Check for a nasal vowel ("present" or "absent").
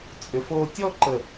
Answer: absent